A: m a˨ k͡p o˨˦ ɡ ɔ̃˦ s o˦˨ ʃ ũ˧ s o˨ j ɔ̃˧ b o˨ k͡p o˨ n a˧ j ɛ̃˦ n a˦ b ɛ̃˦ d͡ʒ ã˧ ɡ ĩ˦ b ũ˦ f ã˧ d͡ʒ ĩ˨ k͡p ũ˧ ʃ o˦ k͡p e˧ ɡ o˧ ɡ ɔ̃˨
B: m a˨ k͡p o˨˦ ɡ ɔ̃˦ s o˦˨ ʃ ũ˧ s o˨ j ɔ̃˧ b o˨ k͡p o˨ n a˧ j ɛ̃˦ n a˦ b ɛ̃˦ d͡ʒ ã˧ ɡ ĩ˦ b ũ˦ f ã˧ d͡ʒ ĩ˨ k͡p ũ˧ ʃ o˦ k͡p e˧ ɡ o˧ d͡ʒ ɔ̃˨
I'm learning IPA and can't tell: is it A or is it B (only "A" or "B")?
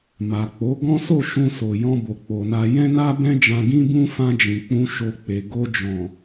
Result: B